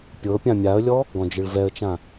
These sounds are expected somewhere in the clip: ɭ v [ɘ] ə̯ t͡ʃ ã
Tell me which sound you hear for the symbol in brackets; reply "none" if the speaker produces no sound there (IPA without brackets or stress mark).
ɛ